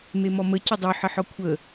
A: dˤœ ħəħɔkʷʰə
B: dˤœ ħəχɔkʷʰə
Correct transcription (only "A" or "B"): A